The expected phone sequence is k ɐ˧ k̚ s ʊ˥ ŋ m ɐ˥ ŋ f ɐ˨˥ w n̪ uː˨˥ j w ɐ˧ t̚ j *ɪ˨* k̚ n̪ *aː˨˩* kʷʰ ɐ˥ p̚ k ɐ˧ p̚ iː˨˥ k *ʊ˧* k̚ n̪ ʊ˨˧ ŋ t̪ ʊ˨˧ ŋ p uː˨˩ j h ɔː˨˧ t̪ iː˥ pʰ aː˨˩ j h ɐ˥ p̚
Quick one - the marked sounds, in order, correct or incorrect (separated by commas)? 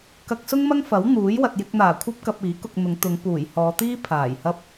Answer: incorrect, correct, correct